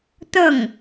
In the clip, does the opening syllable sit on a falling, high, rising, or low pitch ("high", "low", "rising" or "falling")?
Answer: falling